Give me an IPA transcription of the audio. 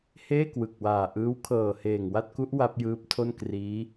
h eː˥˩ k w ɯ˨˩ k̚ w aː˨˩ ʔ ɯː˦˥ w kʰ ɤː˨˩ h eː˨˩ ŋ w a˥˩ t̚ k u˦˥ ʔ w a˦˥ p̚ j ɯː˦˥ p̚ tʰ o˥˩ n k r iː˦˥

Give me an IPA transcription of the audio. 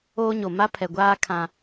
oː˦ ɲ o˨ m a˦ pʰ ɛ˨ ɡʷ aː˦ kʰ ã˦

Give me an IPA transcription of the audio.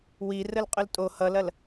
w i r ə l qʼ ɵ l tʼ o h ʌ l ɐ l

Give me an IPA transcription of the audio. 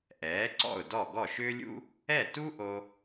ʔ ɛː˩˥ ǀ ɔ̰˥˩ ʊ̯ d ɔ˥˩ ɡ ɔ˥˩ ʃ ʏː˥ lʲ ṵ˥ | ɛ˥˩ t u˥ ʔ o˧

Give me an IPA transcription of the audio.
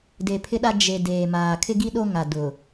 d e˨ pʰ ɪ˦ ɗ a˦ d͡ʒ e˨ d eː˨ m aː˨ kʰ ɪ˦ ɡ i˦ ɗ o˦ ŋ a˨ d ʊ˨

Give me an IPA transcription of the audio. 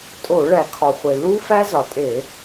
tʼ o˧˩˧ ɭ æ˩ kʰ ɒ˩ χʷ e˩ l u˦˥ f æ˦˥ z ɒ˩ tʼ e˧˩˧

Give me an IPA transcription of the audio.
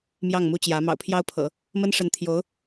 m j ɑ˥˩ ŋ m u˥ t͡ɕ j ä˧˥ m ɑ̰˨˩ ʊ̯ pʰ j ɑ˥ ʊ̯ pʰ ɤ̰˨˩˦ | m ə˥ n ʂ ə˧˥ n t̪ʰ j o˧˥ ʊ̯

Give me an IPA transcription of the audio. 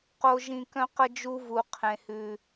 q o˦ ʒ ĩ˦ k œ̃˥ q ə˥ d͡ʒ u˥ v u˦ qʰ ẽ˦ h ʉ˦

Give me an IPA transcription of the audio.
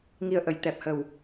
ŋ i˨˩ ə̯ ʔ ə˨˩˨ j t̪ ɛ˨˩ p̚ h ə˨˩ w

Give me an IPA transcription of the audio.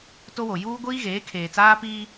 t o˦ w o˨ j uː˦ ɡʷ iː˦ ɣ eː˨˦ kʰ eː˨ t͡s aː˦ p iː˦

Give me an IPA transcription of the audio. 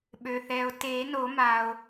ɓ ø˩ θ ɛː˩ o̯ t eː˨˩˦ n o˨˩˦ m a˩ o̯

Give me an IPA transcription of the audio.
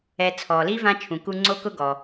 ɛ˨ t͡sʰ ɔ˩ l i˥ v ã˥ t͡ʃʰ ũ˩ k u˦ ŋ͡ǀ o˥ k ʊ˥ ɡ ɔ˩

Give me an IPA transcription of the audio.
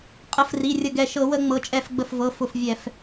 qʼ ə˧˩˧ f r i˩˧˩ rʲ ə˧˩ ɡ ɛ˧˩ ʃ ɤ˧˩˧ w ə˧˩˧ ŋ͡m ɤ˩˧˩ t͡ʃʼ ɛ˧˩ f ɡ͡b ə˧˩ f v ɤ˩˧˩ f ʊ˧˩ f vʲ ɛ˧˩˧ f

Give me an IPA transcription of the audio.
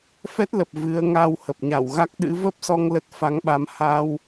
f ɛ˦˥ t̚ l ə˨˩ p̚ v ɨ˨˦ ə̯ ŋ aː˧ w h ə˨˩ p̚ ɲ a˧˩ w ɣ a˦˥ k̚ ɗ ɨ̰˧˥ v ə˦˥ p̚ s ɔ˧ ŋ l ə˦˥ t̚ f a˨˦ ŋ ɓ a˨˦ m h a˧ w

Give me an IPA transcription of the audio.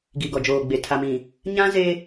ɡ i˨ ɡ ɔ˨ d͡ʒ oː˨ ɡ͡b e˨ tʰ a˨ m ĩ˨ | ɲ ã˦ z e˦

